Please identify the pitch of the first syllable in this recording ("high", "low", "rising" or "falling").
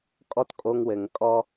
high